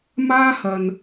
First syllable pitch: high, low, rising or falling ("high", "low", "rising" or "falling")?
high